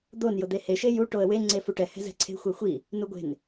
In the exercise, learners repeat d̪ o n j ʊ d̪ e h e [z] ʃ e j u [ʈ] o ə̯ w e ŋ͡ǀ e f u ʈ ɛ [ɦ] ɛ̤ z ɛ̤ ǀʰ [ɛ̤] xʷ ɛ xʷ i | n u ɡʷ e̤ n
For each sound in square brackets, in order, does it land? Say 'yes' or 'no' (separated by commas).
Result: no, yes, no, no